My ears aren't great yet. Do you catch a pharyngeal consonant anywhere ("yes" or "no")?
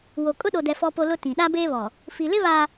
no